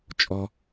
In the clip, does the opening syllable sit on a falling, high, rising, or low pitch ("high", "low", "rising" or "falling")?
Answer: low